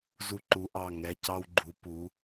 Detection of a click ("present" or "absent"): present